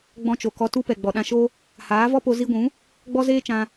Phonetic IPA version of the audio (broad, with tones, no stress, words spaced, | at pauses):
ɡ͡bɔ̃˧t͡ʃo˨ kɔ˧tu˦pɛ˨ ɡ͡bɔ˨ɗã˧ʃo˦ | haː˨˦vɔ˦po˧ zi˧ɡʷũ˨˦ | ɡ͡bɔ˦zeː˦t͡ʃã˧